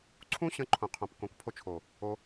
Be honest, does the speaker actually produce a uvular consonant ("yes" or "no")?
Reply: yes